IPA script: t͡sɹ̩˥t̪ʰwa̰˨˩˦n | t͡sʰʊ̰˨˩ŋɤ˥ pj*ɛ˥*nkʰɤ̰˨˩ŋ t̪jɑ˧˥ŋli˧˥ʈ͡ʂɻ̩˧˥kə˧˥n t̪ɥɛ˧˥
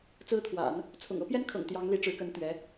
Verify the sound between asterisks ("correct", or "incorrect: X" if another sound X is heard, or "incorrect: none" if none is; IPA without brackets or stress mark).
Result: correct